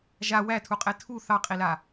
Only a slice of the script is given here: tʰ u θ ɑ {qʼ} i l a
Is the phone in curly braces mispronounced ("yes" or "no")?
no